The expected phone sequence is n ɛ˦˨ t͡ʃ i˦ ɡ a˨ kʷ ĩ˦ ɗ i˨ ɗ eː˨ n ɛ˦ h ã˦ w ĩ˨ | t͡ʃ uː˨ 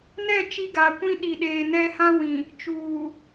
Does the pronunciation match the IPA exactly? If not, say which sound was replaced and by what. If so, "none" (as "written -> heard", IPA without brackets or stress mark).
none